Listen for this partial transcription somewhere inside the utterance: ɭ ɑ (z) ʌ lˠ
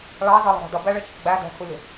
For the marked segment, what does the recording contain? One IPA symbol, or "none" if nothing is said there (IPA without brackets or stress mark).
z